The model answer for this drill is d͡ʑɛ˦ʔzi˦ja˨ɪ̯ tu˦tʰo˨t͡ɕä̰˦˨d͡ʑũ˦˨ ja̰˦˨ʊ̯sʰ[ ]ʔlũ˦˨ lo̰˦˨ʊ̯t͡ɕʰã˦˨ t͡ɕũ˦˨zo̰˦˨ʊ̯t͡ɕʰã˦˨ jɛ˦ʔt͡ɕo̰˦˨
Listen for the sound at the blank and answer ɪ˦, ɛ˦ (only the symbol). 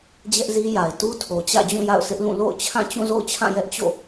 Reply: ɪ˦